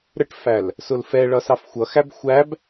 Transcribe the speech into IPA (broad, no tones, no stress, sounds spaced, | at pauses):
ɾ ə ʈ f æ l | s ʊ l f ɛ ɭ ʌ s ɑ f xʷ ʌ x æ b xʷ æ b